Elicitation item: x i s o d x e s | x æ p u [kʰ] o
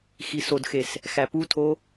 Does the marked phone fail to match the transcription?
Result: yes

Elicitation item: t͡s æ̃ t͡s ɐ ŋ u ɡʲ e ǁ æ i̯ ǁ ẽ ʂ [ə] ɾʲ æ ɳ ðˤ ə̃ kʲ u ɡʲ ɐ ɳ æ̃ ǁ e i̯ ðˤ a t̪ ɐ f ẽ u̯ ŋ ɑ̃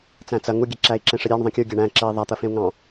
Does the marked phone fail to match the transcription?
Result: no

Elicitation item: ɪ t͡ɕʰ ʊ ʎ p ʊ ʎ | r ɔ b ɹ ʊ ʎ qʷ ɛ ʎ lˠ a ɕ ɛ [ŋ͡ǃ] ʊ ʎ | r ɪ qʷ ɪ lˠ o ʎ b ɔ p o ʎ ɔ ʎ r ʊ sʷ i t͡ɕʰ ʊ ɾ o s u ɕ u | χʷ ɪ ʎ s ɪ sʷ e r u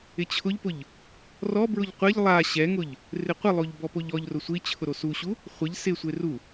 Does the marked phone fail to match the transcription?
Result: yes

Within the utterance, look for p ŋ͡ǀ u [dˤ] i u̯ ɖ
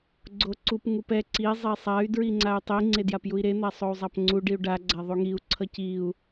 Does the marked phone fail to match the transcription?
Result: yes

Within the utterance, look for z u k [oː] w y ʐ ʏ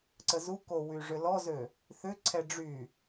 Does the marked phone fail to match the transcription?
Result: yes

